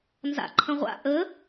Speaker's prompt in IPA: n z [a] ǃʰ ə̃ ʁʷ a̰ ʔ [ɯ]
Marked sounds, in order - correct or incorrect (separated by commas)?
incorrect, incorrect